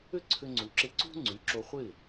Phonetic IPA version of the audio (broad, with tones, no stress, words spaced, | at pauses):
ʏ˥ǀʰʏ˧ ŋ͡ǀu˩ǁɪ˧ ǀṳ˥ŋ͡ǀy˩˥ǁo˧ χʷɪ˥˩